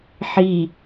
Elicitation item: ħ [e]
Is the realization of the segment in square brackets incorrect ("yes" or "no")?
yes